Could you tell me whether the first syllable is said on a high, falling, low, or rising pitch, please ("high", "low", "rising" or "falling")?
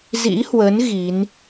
rising